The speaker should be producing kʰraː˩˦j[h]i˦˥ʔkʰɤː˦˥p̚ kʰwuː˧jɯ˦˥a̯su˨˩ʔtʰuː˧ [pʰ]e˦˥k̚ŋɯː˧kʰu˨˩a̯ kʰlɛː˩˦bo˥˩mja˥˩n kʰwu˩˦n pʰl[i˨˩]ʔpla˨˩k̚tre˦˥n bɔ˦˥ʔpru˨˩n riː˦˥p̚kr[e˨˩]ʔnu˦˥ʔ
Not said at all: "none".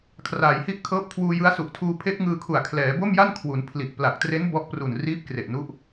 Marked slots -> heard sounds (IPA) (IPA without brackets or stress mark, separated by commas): h, pʰ, i˨˩, e˨˩